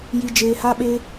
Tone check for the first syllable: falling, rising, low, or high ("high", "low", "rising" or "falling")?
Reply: low